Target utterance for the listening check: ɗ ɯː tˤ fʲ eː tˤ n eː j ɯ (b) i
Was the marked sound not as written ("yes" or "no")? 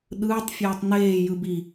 no